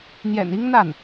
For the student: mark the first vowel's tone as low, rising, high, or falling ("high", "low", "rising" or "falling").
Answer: low